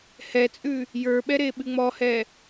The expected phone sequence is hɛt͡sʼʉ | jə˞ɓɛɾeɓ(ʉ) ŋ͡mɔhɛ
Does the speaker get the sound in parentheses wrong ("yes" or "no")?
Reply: yes